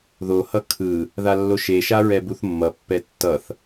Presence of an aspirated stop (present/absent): present